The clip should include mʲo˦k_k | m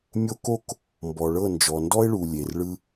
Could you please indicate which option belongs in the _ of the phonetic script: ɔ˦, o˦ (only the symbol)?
o˦